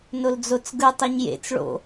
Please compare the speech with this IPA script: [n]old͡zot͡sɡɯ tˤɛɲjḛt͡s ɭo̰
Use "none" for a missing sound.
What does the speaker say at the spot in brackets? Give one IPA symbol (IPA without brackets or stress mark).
n